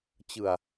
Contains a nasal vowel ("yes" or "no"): no